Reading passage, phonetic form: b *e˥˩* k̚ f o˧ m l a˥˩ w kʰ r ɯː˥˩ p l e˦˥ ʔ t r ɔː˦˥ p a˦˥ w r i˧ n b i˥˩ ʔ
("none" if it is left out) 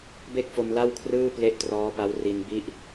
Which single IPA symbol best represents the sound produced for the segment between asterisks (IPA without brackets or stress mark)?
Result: e˥˩